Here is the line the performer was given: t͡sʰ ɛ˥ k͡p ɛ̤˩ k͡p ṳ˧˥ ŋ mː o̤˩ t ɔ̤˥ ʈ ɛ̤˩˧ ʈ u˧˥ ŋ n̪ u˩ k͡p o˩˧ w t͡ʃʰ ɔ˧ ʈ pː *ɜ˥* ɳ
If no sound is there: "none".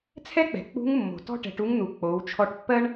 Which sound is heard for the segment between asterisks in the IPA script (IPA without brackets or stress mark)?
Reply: ɜ˥